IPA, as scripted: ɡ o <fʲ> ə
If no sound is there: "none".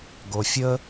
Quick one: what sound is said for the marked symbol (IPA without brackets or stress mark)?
fʲ